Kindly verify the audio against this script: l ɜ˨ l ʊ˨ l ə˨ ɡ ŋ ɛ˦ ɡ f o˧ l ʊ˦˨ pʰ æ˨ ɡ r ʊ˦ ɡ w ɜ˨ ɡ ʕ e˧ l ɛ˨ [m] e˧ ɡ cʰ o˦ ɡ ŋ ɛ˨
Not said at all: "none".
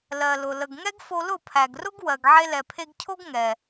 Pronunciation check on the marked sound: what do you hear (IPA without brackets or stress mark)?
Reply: pʰ